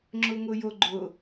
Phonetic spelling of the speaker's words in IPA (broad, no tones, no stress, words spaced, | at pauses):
ŋ͡ǁʊŋʊjoɡ͡ǃʊ